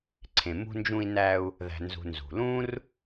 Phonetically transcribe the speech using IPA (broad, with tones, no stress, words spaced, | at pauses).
ǀʰẽ˩mṳ˧ nd͡ʒũ˧i̯næ˧u̯ | ðæ̤˩nzṳ˩ nzṳ˩lũ˥r